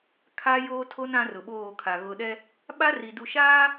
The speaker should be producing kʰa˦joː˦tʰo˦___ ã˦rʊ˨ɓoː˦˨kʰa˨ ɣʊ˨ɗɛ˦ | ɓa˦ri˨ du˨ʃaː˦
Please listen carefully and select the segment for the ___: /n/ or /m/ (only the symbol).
n